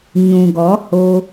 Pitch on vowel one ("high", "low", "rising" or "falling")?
low